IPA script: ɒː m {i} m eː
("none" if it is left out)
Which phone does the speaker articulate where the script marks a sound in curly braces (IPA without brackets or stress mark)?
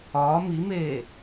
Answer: i